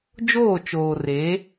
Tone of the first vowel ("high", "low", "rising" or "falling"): falling